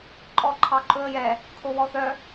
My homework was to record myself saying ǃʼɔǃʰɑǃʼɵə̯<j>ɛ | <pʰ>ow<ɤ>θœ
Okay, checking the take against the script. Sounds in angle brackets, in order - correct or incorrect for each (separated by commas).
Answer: correct, incorrect, incorrect